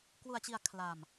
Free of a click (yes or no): yes